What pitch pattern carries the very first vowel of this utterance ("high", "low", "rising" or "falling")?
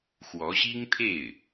rising